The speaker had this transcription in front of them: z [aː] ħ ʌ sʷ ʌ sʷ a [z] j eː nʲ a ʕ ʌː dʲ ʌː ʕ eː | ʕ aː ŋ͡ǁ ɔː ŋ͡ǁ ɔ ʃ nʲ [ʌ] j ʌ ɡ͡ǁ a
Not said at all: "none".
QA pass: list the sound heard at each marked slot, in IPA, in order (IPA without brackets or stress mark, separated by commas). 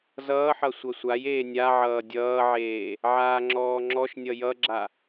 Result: ʌː, none, ʌ